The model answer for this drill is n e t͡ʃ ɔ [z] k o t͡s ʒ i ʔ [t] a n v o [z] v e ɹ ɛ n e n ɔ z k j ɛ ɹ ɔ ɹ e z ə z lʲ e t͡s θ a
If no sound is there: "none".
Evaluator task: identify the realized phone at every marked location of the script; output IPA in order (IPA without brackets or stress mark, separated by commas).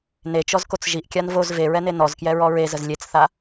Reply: z, kʲ, z